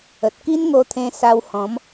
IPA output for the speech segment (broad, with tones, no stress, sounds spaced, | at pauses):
ə˨ t̚ k i˦ n ŋ o˧ t̪ʰ ẽ˧ s a˧ w h ɔ̃˨˦ m